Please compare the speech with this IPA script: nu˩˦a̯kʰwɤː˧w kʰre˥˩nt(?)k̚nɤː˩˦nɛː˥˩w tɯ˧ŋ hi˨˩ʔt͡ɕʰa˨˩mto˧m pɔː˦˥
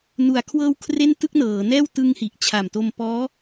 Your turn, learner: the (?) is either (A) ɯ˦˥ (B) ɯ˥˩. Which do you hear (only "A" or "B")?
B